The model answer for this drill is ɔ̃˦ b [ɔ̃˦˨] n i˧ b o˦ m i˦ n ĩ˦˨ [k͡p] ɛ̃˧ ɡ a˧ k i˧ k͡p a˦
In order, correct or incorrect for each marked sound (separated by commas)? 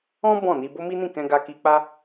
correct, incorrect